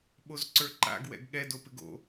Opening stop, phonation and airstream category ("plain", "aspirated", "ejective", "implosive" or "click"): implosive